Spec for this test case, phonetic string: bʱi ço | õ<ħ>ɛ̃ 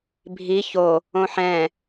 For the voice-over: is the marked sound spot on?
yes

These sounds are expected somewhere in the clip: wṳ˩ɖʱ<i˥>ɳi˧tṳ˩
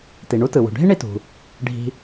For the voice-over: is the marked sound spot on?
yes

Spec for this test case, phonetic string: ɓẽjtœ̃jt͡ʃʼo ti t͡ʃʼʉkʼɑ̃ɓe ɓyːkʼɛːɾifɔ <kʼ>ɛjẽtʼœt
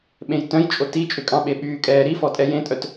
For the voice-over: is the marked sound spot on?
no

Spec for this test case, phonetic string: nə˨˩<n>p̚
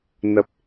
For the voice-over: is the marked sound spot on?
no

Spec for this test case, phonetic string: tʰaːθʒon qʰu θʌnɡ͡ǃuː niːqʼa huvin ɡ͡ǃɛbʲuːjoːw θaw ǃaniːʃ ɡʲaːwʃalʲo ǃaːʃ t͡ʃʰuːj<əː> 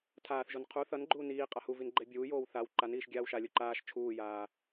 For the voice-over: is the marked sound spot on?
no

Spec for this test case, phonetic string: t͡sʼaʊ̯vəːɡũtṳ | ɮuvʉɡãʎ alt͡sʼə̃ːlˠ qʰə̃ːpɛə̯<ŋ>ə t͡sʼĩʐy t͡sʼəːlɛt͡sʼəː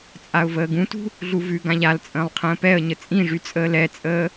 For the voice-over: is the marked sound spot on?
no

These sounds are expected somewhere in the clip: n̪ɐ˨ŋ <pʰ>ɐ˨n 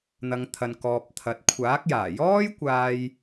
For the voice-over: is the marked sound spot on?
no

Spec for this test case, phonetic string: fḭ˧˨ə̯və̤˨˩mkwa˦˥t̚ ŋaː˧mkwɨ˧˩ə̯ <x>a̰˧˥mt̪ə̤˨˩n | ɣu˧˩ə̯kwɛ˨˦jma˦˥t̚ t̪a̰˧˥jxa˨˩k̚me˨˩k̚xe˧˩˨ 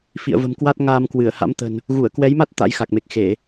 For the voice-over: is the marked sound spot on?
no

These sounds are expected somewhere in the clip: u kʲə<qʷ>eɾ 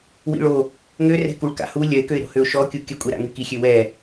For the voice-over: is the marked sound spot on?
no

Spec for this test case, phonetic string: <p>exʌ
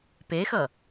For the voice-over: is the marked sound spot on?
yes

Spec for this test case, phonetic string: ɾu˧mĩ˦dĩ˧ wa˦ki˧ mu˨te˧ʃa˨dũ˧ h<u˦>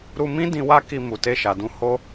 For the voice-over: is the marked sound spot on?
no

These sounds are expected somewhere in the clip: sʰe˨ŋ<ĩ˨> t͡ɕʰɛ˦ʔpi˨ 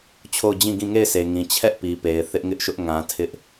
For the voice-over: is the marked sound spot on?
yes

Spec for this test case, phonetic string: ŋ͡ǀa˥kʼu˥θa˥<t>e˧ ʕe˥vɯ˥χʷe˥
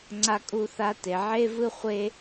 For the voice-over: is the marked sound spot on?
yes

